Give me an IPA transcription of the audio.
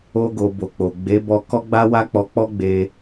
o˧ ɡ o˨ b o˨ k͡p o˨ ɡ͡b e˨˦ b ɔ˧ k ɔ˦ ɡ͡b a˦ w a˦ k͡p ɔ˧ k͡p ɔ˦ ɡ͡b e˧

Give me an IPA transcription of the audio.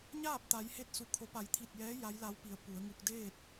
ɲ aː˥˨ p̚ t̪ a˩˧ j h e˧ t̚ s u˩ kʰ o˩˧ p a˩˧ j t̪ʰ i˧˩ t̚ j ɛː˧˥ j a˧˥ j l a˧˥ w p i˩˧ ə̯ p u˩˧ ə̯ ŋ u˧ k̚ d eː˥˨ t̚

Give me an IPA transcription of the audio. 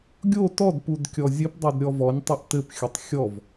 ɡʲ o t ɔ d p u d kʲ ɔ zʲ ɘ p dˤ ɵ d ɾʲ ɔ v ɔ nʲ tˤ ɘ ʔ t ɘ p xʲ ɵ tˤ xʲ ɔ v

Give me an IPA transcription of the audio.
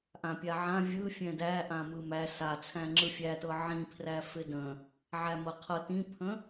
ʔ ã pʲ a ʕ ã vʲ ɯ fʲ ɛ̃ d æ ʔ ã m ɯ m æ s a t͡sʰ æ̃ ŋ͡ǁ ɯ fʲ æ t ɤ ʕ ĩ pʰ r æ f ɪ d ə̃ | ʕ æ m ɤ qʰ ɤ t ĩ pʰ ə̃

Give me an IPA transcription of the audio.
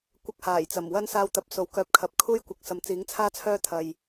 kʷ ɐ˧ k̚ h aː˨˩ j t͡s ɐ˨˩ m w ɐ˥ n s aː˧ w t̪ ɐ˨ p̚ s o˨ w k œː˧ p̚ kʰ ɐ˨ p̚ kʰ uː˥ j kʷ ɐ˨˥ k̚ s ɐ˨ m t͡s iː˨˥ ŋ t͡sʰ aː˥ t͡sʰ œː˥ t̪ʰ ɐ˨ j

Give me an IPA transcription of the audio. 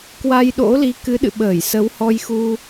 k w a˧ j ɗ o̰˧˥ l i˨˦ k ɨ˨˦ ɗ ɨ̰˧˨ ɓ əː˧˩ j s ə˨˦ w h ɔ˧ j x u˧

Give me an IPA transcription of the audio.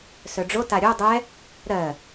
s œ ɖ͡ʐ o t a ɾʲ o dˤ ɛ | ɾ ɜ

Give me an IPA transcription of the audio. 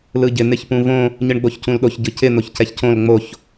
l ɯ ɟ ɪ n̪ ɪ ç p ũ v õ | ɲ ɯ ɳ ɡ͡b o ç c ũ l ɗ o ç ɟ ɯ c ɪ n̪ o ç c ɛ ç c õ l ŋ͡m o ç

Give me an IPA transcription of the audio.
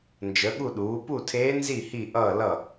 n d͡ʒ ə˩˥ ɠ u˥˩ ɗ uː˩˥ p u˥˩ tʰ eː˧˥ n z i˥˩ h i˥˩ ʔ ʌː˥˩ l ʌ˥˩

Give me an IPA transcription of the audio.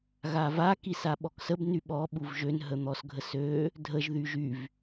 ɣ a v a k i s a ɓ ɔ k s ə b n y ɓ ɔ ɓ u v ʒ ø n ɦ ə n̪ ɔ s ɡʱ ə s ø | dʱ ə ʒ ð y ʒ y v

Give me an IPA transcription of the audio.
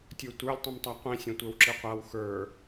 tʲ ə˞ tʷ ə˞ lʲ tˤ ĩ m tˤ a qʷ ĩ sʲ õ tʷ ə˞ w ǁ i qʷ a w x ə˞

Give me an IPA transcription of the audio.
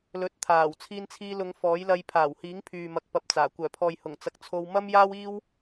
l ɵ˨˥ t̚ t̪ʰ aː˨˩ w t͡sʰ iː˧ n t͡sʰ iː˧ l ʊ˨˧ ŋ f ɔː˨˥ j l ɐ˧ j pʰ aː˨˩ w h iː˨˥ ŋ pʰ yː˨ m ɐ˧ k̚ p ɐ˧ p̚ t͡s aː˨˩ kʷ œː˨˩ pʰ ɔː˨ j h ʊ˨˩ ŋ t͡s ɐ˨ k̚ t͡sʰ o˧ w m ɐ˥ m j aː˥ w iː˥ w

